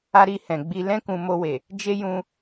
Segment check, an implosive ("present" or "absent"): absent